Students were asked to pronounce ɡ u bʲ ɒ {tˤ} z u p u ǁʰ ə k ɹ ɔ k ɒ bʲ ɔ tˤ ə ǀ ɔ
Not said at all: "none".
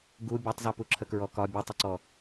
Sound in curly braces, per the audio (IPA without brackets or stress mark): tˤ